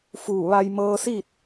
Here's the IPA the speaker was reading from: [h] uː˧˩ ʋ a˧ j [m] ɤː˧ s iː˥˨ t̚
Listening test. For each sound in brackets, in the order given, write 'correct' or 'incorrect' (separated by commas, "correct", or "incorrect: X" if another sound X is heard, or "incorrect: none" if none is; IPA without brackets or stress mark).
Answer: incorrect: f, correct